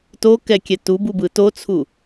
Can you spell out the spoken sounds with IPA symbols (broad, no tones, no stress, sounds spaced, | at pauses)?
t o k ɛ kʲ ɛ t u b u b ɯ t o t͡sʰ u